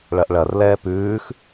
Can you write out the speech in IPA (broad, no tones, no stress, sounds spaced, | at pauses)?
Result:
ɭ ɐ ʔ ɭ ɐ r l ɛː p ʉː x